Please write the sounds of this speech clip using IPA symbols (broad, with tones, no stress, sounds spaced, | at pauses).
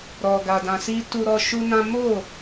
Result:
ɾ ɔ˨ ɡ a˨ d ã˨ s i˧ t u˧ ɾ ɔ˧ ʃ u˦ n ã˦ m o˦˨